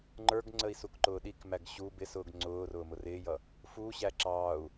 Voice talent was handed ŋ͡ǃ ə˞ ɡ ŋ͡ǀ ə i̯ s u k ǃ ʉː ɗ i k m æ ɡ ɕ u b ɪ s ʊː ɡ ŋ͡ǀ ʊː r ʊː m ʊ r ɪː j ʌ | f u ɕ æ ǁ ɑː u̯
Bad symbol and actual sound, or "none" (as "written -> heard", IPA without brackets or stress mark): ʉː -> ʊː